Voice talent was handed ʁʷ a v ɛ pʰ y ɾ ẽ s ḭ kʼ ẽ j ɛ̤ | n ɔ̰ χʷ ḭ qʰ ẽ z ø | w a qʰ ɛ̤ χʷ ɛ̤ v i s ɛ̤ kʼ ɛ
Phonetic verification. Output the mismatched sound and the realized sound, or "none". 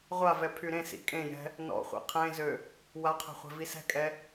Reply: none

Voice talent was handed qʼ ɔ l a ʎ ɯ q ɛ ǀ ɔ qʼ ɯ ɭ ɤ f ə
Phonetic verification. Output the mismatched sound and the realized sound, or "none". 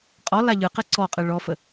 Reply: ɤ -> ɔ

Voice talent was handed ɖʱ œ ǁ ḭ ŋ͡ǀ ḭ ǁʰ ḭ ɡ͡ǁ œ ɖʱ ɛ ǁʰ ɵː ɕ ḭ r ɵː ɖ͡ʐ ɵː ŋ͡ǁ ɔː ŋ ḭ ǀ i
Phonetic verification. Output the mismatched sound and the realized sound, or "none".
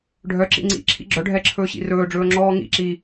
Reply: ǀ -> ǁ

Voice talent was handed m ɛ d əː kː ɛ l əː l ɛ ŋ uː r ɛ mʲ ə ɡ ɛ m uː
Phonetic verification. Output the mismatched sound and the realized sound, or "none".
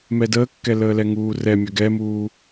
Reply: none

